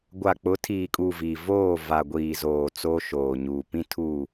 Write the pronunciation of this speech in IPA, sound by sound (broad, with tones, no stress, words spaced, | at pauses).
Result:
ɡʷa˨k͡pʊ˨˦tʰiː˨kʼu˨ vi˨ voː˦˨ va˨ ɡʷiː˨zoː˨ t͡soː˦ʃoː˨ɲuː˨ pĩ˦tʰu˦˨